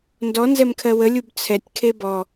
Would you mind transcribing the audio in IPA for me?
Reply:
n d ɔ n z ɛ m kʰ ɜ w ə lʲ u b t͡sʰ ɛ tʲ kʰ e b ɔ

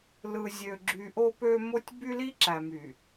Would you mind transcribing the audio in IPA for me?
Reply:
l ɯ˨ zʲ ø˨ ɡ͡ǁ y˨ ʔ o˦ p ø˦ m o˦ tʲ b y˦ l i˦ ǁ æ˨ m y˨

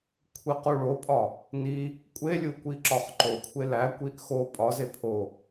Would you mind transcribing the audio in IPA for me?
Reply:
kʷʰ i q u ɭ o pʼ ɒ | n i | kʷʼ e lʲ u kʷ i ǁ ɒ χ ǃ o kʷʰ e l æ kʷ i ʔ x o pʼ ɒ z e pʰ o

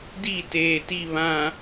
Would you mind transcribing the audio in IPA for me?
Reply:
d i˦˨ t eː˨ t i˦˨ β ã˨

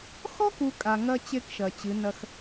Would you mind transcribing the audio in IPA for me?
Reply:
x ɔ˦ k u˨ kʼ a˨ ŋ ɐ˦ t͡ɕ e˦ k ʃ ɐ˨ t͡ɕ ɨ˨˦ n ɐ˦ x

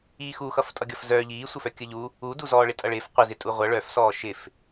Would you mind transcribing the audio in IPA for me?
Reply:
iː x u x ʌ f tʼ ʌ ɡʲ ʌ f z œ ʎ iː sʷ ə f œ kʲ ə ʎ u | uː d u z ɔː ɭ ɪ tʼ ʌ ɭ ɪː f qʷ ɪ z ɪ tʼ u ʁʷ ʌ ɭ œ f s ɔː ʃ ɪ f

